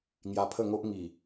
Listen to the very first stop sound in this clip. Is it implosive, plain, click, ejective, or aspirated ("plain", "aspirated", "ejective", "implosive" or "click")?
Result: aspirated